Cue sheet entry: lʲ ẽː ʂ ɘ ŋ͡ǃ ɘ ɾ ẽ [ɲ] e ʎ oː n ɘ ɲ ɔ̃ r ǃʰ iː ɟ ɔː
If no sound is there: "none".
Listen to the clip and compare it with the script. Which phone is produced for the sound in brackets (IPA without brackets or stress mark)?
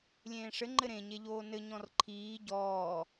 ɲ